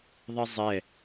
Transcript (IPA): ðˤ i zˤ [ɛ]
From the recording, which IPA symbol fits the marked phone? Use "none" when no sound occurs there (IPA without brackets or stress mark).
ɛ